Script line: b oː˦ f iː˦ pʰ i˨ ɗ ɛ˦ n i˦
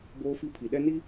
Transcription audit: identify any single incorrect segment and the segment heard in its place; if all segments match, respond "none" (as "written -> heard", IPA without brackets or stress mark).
iː˦ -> i˦